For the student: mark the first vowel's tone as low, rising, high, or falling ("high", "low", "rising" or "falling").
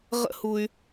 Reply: high